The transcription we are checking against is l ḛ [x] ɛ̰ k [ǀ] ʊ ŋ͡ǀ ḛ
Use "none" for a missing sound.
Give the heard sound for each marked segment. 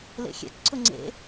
xʲ, ǀ

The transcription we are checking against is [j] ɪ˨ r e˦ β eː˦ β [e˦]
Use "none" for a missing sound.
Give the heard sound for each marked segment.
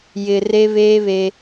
j, e˦

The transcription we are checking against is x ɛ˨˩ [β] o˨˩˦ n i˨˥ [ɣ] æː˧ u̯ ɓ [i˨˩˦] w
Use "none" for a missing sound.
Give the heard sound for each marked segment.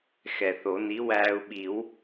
θ, w, i˨˩˦

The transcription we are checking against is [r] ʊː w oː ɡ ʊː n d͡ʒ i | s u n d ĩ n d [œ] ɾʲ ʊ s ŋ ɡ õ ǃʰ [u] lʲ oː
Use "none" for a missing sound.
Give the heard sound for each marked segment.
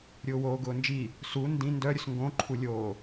ɾʲ, œ, u

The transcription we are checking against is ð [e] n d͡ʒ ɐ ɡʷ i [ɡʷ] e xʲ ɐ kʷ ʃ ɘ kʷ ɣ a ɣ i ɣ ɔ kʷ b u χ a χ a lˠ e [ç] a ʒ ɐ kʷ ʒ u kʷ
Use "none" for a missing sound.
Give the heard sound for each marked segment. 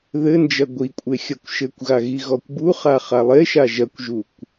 ɘ, kʷʼ, ʃ

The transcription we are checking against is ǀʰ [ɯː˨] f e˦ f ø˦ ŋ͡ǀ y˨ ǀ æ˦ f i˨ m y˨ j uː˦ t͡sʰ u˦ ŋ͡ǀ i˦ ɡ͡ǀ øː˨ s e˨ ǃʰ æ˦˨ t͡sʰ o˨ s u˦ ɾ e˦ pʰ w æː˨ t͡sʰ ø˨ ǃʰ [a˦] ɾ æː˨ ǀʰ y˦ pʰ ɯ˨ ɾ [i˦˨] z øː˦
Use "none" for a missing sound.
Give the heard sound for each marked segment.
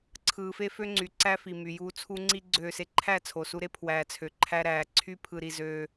ɯː˨, æ˦, i˨

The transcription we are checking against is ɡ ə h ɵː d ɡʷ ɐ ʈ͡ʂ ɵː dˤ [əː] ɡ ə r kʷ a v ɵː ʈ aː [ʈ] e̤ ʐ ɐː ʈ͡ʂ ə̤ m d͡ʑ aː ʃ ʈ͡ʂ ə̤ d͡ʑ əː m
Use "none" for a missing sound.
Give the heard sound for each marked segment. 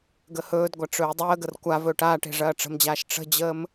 əː, ʈ

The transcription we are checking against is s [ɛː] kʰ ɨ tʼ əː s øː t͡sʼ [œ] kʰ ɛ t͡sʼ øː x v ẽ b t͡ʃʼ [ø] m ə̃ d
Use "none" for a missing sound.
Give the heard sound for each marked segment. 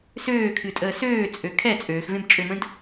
øː, ø, ø

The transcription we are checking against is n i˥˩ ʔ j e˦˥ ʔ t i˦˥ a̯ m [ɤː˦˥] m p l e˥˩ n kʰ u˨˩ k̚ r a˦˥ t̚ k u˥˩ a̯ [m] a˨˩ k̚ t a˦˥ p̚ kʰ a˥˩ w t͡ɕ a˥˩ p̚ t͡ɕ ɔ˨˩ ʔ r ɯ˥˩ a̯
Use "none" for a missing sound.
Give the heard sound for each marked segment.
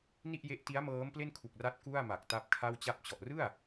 ɤː˦˥, m

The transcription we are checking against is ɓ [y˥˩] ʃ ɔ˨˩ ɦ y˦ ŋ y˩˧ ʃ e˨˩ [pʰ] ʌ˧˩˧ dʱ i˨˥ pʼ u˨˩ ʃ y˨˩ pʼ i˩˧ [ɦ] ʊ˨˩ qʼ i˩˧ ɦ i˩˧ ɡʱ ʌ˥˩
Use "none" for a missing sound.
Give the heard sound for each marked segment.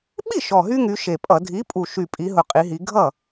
i˥˩, pʼ, ɦ

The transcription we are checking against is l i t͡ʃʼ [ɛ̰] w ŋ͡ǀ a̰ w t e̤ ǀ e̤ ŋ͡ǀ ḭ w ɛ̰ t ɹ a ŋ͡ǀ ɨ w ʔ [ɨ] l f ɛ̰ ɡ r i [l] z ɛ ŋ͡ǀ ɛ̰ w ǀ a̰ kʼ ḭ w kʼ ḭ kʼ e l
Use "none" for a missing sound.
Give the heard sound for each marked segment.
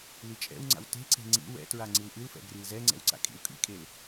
ɛ̰, ɨ, l

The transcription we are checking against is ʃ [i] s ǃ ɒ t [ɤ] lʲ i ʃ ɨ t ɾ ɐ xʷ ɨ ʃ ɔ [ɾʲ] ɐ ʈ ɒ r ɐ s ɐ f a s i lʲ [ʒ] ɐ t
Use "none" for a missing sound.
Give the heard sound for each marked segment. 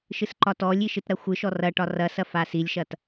ɨ, ɔ, r, ʃ

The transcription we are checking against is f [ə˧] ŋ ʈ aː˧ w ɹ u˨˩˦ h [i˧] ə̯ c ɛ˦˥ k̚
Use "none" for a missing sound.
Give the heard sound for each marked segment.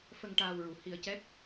ə˧, i˧

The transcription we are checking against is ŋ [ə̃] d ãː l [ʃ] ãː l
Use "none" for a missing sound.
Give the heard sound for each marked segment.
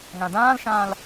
ã, ʃ

